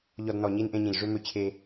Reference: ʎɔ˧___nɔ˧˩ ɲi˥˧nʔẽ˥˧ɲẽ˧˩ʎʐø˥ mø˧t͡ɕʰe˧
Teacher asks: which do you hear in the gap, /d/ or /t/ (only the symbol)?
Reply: d